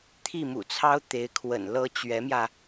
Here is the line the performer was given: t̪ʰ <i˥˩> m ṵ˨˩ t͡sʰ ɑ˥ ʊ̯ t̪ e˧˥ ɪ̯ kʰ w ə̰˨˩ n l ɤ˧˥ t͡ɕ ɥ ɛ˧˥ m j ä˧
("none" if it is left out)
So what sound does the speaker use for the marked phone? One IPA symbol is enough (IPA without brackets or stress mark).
i˥˩